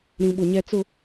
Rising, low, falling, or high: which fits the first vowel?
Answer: low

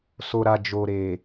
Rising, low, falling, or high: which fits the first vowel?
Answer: low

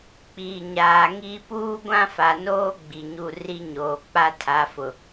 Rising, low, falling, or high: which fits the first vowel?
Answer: low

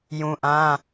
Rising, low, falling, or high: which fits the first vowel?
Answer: low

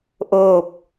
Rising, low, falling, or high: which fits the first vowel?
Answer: falling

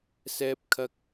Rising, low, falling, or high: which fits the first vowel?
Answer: high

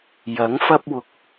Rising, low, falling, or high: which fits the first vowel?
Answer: rising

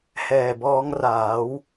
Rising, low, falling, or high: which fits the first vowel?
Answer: low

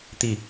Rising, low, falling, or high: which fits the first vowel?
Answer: falling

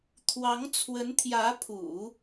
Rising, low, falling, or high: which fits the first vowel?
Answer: rising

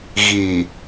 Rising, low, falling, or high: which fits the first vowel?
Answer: low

